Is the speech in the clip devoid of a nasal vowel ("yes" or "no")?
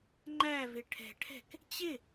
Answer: yes